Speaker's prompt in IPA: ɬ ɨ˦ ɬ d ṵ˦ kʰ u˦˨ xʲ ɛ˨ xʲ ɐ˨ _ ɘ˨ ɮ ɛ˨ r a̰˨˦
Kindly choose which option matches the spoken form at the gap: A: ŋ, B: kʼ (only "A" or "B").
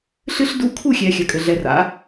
B